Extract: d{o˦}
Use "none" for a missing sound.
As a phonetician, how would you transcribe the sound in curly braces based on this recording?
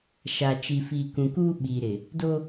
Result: o˦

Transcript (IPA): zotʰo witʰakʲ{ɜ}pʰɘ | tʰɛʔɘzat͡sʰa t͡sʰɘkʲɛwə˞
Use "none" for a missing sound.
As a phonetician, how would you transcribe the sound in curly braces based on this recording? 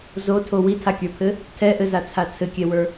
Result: ə˞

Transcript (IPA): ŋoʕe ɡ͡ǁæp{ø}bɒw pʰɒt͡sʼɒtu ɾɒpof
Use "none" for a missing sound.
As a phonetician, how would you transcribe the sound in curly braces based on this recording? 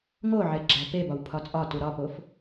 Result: e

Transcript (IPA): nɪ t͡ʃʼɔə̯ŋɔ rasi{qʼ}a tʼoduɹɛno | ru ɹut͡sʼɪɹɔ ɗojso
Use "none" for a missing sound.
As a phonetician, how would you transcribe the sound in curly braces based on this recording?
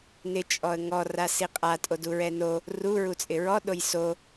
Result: qʼ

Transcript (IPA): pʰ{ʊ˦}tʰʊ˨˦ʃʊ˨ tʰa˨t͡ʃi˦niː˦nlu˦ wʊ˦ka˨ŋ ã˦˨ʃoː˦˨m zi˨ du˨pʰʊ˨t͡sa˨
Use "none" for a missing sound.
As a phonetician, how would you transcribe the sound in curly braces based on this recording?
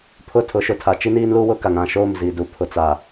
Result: ʊ˦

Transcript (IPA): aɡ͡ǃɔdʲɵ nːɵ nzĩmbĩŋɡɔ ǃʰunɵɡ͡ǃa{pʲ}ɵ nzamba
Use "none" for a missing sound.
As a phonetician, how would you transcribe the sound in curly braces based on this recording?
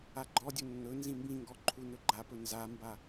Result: p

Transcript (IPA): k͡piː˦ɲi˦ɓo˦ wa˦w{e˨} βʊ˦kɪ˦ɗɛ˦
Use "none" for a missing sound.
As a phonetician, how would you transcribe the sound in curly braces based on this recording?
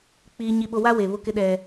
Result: e˨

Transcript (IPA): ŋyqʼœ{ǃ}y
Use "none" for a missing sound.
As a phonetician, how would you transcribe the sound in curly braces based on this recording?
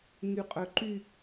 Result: ǃ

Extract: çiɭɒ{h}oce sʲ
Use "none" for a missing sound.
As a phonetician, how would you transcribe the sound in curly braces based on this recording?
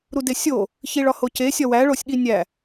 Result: h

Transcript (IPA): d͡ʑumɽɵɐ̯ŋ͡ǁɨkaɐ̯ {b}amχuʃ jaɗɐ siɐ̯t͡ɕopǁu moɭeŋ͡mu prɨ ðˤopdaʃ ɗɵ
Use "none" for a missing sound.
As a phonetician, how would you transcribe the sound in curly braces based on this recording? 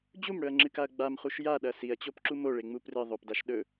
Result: ɡ͡b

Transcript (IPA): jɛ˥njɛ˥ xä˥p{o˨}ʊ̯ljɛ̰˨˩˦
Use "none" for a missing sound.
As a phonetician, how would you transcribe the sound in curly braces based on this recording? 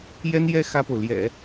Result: o˨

